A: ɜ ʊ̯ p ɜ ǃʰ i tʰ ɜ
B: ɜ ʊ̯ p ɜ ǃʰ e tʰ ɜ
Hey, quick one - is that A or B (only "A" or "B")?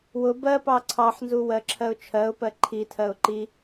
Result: A